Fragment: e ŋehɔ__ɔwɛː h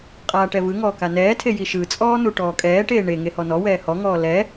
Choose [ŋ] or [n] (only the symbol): n